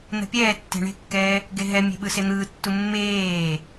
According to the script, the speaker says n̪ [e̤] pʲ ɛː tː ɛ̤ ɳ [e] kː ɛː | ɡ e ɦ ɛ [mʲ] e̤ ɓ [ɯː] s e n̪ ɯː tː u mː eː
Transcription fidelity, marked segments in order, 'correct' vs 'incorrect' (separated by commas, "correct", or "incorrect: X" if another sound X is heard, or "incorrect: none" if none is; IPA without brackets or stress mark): incorrect: ɛ̤, incorrect: e̤, correct, incorrect: ɯ